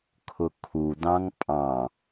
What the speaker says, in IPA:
kʰʊkʰu dɑ̃ŋpʼɑ̃

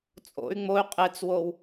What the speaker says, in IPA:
t͡sʼo̰y̯ ŋ͡moy̯ qʼet͡swow

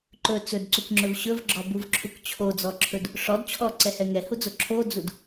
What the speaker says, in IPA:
ǃɵ t͡sɵdǀukŋ͡ǁɵv ɕɵvɡ͡ǁɔbuvǁʰuk t͡ɕʰod͡zɔǁʰɵd | ʂɔd t͡ɕʰɔǀɛhɛ ŋɛhud͡zo ǁʰod͡zud

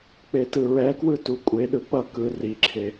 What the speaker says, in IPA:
k͡petɯɹɛkwɯ tukʷʼeɗɯ k͡pʌ kɯ riǁʰe

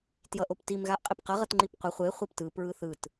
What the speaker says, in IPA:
tjʌʔoptim ɣaʔqʼepqʌ ʁʌtŋ͡ǃipqʷʌ χʷe χʷeptɯ pɹɯθɯt

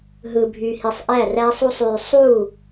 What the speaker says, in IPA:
ɦɯ˨bʱy˨hi˨sˤ ʔæ˦˨ræ˦sˤu˦sˤ y˨sˤu˦˨

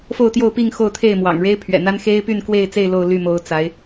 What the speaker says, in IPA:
fo˥˧ʊ̯t̪jo˥˧ʊ̯pi˥˧ŋ xo˥˧ʊ̯t̪ʰe˥˩ɪ̯mwɑ̰˨˩ŋ ɻe˥ɪ̯pʰɥɛ̰˨˩n̪a˥n xe˥ɪ̯py˥˧nkwe˥˧ɪ̯t͡se˥˧ɪ̯ lo˥˧ʊ̯ly˥˩mo˧˥ʊ̯ t͡sa˧˥ɪ̯

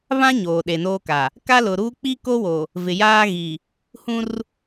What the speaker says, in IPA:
βã˦ ɲoː˨ɗe˨noː˦ka˨ | ka˦lʊ˨ɾuː˦ k͡pi˦ko˦wo˨ | vɪ˨jaː˦ɣi˨ | hũ˦r

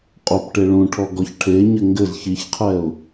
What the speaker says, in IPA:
qʼopʈe ɭũʈʰɔ ɡɔçʈʰeɲɘ ŋɡɘz çiçqʰɛʊ̯

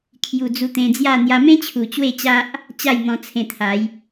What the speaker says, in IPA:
kʰju˨˩ d͡zu˧t̪ẽ˧d͡zja˥˧ n̪ja˧mẽ˦t͡ɕʰu˨˩ t͡ɕwe˥˧t͡ɕa˦ʔ | t͡ɕa˥˧jn̪ɔ̃˧ t͡sʰẽ˧t̪ʰa˨˦j

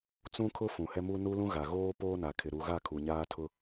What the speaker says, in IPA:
t͡sũ˦kʰʊ˦ fũ˨hɛ˦mu˦ nu˦lũ˦ ɣa˨ ɣoː˦poː˦na˨kʰɪ˨ ɾu˨ɣa˦˨ kʰu˨ɲaː˦tʰʊ˦

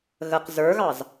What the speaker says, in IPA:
ɣəq zə˞ɣɑz

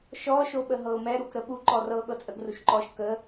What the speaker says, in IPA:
ʃɔ ʃoɓəɦɤʊ̯mɛ ɾukɾəɓu ǃɔrɤ ɠɤt͡sʼəɡ ruʃǃɔʃ kə

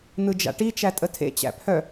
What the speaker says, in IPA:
n̪ɯd͡ʒa̰ʈi t͡ʃætʼətʰḛ t͡ɕæ̰pʰœ

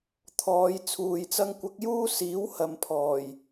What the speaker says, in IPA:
t̪ʰɔː˨˧jt͡sʰuː˨jt͡sɐ˥ŋ kʷɐ˧k̚juː˥ siː˨˥whɐ˨mpʰɔː˨˩j

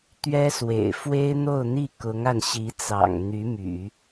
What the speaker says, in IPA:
t̪ɥɛ˥swḛ˨˩ɪ̯ fwe˥ɪ̯n̪o˥˧ʊ̯n̪i˥˩ kʊ˧˥ŋa˧n ɕi˧˥t͡sɑ̰˨˩ŋ n̪y˧˥my̰˨˩˦

